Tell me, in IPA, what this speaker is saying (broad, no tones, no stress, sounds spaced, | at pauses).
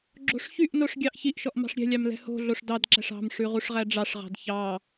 ɡ͡ǁ o̤ ʂ ç y ʔ n o ʂ ɡʲ ɑ ʔ ç i ʔ ʃ ɔ ʔ m ɑ̤ ʂ ɾʲ ɛ̤ lʲ ɑ m l ɛ̤ h o̤ ɮ o ʂ d ɑ d ǁ æ̤ ʂ ɑ̤ m ʂ ʉ ʁ u ʂ ʁ æ ɖ͡ʐ ɑ ʂ ʁ ɑ̤ d ç ɑ